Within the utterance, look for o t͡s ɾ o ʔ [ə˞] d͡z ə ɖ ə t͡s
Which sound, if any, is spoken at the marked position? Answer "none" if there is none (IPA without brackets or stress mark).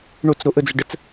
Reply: ə